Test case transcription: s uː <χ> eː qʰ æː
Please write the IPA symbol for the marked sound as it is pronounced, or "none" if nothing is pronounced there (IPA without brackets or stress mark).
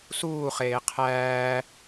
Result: χ